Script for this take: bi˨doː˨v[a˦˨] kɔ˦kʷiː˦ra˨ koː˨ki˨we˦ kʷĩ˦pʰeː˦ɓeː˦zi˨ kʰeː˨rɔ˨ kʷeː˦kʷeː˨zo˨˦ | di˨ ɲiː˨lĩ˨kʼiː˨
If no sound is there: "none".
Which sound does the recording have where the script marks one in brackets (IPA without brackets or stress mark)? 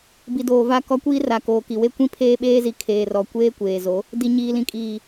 a˦˨